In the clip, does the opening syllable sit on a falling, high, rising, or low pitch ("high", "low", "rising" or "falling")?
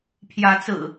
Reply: rising